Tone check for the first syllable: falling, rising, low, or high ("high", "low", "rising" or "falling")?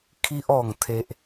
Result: high